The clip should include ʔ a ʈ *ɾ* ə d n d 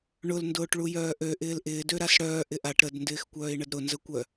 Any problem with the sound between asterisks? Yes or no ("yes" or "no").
no